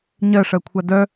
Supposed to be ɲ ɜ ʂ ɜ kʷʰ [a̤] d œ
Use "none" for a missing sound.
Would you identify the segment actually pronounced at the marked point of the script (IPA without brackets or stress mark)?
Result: a